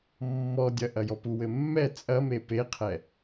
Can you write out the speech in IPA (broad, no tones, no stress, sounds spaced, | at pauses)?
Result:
mː ɔ dʲ ɐ ʔ ɐ j ɔ p u w ɘ mː ɛ t͡sʼ ɐ m e p e qʰ ɛ